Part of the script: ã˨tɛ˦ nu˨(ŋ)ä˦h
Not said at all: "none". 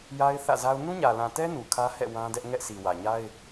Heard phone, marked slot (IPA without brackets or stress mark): kʰ